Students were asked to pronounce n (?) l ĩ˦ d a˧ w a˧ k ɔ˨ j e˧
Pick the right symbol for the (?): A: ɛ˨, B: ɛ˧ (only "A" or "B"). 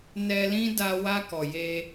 B